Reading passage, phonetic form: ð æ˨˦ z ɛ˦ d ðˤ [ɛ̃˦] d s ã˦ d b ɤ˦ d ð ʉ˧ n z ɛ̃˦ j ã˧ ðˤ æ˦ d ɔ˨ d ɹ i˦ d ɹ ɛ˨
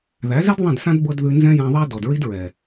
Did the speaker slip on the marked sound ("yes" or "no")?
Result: yes